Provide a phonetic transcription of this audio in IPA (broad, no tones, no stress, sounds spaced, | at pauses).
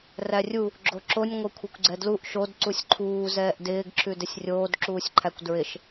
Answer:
r æ rʲ u | ɡ͡ǁ o ǁ o nʲ ŋʷ ɛ kʷʰ e kʷ ɡ͡ǀ ɛ d l u ʔ ʃ o d ǀ u sʲ ǃʰ uː z ɛː ʔ d ɪː ɡ ǁʰ ʉ d ɪ sʲ rʲ oː d ǁ uː sʲ ǃʰ æ kʷ d ɹ ɪ ʃ